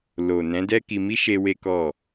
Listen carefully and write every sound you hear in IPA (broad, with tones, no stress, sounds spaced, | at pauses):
l o˨ n ɛ̃˨˦ d ɛ˦ k i˧ m i˦ ʃ e˦ w e˦ k ɔ˦˨